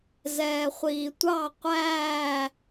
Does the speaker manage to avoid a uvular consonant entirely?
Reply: no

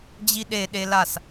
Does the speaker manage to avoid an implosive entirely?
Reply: no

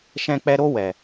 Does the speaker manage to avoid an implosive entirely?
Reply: yes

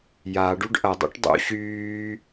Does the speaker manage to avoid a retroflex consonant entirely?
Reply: no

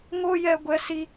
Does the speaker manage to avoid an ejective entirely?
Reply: yes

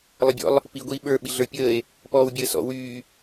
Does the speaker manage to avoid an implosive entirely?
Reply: no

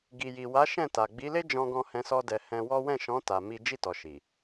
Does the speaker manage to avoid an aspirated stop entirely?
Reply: yes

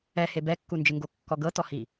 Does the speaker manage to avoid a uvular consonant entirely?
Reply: yes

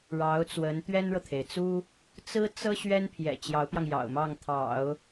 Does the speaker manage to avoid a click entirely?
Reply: yes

